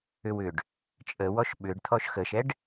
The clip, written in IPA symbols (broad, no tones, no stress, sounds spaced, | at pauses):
ʏ w ʏ ɖ | t͡ʃʼ ə w ɔ ʃ ɓ ʏ ɖ t̪ʰ ɔ ʃ x ə ʃ ɛ ɖ